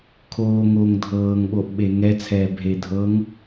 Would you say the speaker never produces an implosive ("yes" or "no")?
no